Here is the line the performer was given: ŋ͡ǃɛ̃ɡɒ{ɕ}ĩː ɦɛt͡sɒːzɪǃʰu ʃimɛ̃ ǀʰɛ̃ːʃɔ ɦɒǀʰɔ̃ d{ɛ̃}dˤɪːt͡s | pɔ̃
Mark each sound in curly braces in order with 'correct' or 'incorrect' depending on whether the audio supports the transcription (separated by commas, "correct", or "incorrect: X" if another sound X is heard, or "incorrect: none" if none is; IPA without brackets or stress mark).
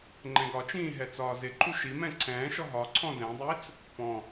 incorrect: t͡ʃ, correct